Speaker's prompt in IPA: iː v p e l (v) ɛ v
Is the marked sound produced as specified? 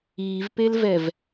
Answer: yes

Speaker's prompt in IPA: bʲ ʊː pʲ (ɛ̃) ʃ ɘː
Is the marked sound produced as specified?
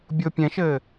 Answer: yes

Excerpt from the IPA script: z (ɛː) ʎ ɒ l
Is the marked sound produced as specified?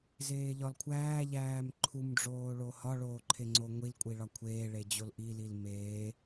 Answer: no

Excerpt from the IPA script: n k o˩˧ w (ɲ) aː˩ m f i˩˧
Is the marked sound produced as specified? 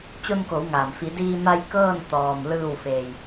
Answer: no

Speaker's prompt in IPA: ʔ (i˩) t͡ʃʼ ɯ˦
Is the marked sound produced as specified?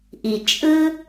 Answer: yes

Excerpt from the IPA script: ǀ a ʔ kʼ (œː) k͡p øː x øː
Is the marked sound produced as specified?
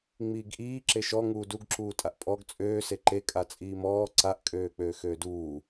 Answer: no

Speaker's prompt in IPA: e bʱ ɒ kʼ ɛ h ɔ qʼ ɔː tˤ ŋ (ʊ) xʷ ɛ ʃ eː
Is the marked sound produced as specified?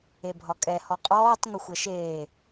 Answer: yes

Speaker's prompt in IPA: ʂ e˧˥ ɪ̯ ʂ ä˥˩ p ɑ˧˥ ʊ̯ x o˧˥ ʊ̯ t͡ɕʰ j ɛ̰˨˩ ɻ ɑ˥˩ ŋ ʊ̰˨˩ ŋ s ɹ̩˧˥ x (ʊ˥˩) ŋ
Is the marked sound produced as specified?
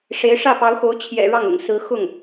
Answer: yes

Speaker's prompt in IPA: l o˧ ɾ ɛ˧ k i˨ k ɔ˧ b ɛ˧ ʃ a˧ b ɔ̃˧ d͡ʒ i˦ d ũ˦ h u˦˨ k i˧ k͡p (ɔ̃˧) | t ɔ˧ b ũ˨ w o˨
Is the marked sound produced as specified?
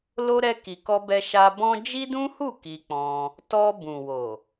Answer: yes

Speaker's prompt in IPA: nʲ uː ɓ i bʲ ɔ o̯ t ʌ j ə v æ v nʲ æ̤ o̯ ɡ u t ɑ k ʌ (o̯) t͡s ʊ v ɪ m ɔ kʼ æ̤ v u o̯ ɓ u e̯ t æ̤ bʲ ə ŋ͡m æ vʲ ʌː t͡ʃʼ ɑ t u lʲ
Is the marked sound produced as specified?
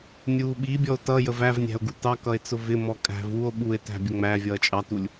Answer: no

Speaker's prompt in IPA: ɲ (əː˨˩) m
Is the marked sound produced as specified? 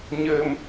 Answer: yes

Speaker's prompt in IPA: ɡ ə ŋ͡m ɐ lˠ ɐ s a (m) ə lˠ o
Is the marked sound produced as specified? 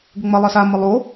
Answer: yes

